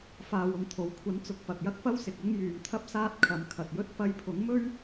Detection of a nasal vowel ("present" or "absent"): absent